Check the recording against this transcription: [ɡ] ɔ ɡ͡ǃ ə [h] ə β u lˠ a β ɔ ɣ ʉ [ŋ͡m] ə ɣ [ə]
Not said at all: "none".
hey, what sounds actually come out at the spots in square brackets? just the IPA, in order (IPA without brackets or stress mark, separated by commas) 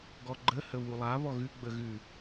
ɡ, h, ɡ͡b, ʉ